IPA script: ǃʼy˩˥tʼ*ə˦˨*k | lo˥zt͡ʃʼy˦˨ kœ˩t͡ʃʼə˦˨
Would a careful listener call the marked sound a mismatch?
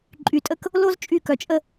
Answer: no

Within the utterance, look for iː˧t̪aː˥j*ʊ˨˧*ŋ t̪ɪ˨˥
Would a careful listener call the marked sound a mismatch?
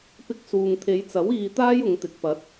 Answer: no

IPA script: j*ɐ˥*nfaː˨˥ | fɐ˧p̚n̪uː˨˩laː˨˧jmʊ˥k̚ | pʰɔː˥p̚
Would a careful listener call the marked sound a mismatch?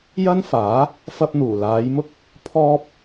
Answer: no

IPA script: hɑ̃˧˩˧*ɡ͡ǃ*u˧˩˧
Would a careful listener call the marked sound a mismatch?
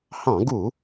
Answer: yes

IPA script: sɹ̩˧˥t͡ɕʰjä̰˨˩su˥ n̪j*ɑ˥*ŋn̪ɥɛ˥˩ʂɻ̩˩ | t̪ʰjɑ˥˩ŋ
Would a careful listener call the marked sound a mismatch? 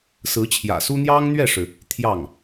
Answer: no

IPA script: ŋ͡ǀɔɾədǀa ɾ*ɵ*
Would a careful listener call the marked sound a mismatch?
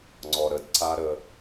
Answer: yes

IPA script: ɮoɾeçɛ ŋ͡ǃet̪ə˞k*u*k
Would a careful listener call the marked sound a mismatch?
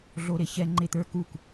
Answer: no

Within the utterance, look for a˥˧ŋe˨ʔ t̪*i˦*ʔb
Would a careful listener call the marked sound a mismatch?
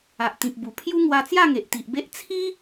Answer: yes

